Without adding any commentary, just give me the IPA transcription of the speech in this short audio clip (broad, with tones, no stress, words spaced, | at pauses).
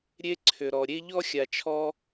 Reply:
ɾʲe˦ǀʰʏ˨ɾɔ˨ ɾʲe˦ ʎɔ˦xʲa˨t͡ʃʰɔ˧